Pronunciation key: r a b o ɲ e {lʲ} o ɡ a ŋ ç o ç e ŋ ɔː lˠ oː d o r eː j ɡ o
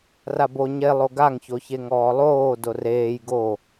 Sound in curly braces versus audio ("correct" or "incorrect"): incorrect